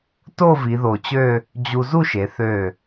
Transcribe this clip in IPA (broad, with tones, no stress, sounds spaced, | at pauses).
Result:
t o˥˧ v i˩˧ ð o˧˩ t͡ɕ ø˥˧ | d͡ʑ u˧ z u˥˧ ʃ e˩˧ θ ø˧˩